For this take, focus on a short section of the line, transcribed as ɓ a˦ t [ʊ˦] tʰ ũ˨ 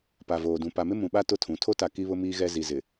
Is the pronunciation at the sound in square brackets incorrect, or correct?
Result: correct